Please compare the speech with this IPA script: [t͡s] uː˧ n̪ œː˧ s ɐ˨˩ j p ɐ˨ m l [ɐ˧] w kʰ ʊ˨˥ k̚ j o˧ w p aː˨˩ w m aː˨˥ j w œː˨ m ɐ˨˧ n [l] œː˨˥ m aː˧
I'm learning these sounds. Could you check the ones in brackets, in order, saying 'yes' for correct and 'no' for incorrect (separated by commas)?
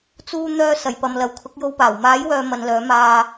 yes, no, yes